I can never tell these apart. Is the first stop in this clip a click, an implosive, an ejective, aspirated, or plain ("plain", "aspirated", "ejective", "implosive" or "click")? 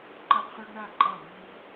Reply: click